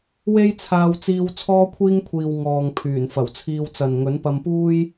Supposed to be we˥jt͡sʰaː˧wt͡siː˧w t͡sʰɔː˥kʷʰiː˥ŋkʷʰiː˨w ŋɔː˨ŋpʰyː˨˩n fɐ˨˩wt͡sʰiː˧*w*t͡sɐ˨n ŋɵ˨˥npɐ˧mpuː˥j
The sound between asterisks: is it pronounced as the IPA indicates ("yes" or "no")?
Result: yes